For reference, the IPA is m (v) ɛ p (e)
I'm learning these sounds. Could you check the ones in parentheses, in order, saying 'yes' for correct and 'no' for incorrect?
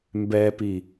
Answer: no, no

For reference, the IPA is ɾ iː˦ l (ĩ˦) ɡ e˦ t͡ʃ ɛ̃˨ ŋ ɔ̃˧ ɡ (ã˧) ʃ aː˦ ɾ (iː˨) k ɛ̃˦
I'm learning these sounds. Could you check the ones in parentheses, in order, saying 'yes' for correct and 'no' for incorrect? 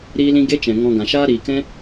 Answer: yes, no, yes

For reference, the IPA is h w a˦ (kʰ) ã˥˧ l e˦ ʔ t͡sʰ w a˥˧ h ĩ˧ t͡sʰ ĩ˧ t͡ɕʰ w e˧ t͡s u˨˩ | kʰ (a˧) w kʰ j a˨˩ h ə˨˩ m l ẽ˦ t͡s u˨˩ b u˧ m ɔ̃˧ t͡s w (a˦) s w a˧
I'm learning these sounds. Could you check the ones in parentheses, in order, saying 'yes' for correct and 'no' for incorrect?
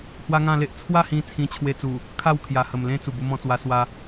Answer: no, no, no

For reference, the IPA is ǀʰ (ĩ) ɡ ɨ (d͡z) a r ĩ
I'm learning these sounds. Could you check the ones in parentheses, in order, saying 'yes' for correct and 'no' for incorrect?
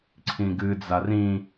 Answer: yes, yes

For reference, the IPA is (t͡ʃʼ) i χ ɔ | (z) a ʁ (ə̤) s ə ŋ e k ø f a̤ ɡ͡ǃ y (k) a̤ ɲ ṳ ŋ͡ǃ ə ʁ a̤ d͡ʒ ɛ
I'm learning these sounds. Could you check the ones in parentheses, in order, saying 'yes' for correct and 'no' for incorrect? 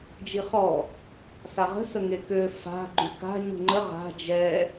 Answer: no, no, yes, yes

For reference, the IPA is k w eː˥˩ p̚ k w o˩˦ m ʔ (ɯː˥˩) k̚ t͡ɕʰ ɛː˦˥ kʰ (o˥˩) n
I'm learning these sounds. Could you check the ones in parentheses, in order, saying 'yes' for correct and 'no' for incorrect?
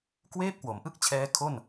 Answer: no, yes

